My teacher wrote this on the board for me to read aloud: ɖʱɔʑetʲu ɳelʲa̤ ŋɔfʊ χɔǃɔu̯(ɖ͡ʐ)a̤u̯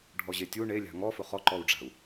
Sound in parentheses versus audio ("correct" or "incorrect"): correct